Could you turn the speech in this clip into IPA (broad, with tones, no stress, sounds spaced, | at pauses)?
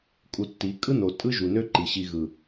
kʼ u˧ tː i˨˦ kʼ ɯ˦ n o˨ tʼ ɯ˦ ʒ u˨ n ø˦ ǃ i˨ ɕ i˧ ɣ ɯ˨